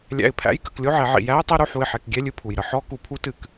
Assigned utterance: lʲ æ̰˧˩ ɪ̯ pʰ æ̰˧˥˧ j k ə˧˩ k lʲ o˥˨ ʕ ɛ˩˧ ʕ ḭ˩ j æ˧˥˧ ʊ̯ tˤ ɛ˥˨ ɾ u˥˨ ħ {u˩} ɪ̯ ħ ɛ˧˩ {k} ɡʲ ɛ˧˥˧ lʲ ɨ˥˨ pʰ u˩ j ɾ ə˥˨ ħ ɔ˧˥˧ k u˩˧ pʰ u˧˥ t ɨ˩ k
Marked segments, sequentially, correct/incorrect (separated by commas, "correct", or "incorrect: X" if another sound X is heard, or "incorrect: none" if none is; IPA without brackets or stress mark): incorrect: u˧˩, correct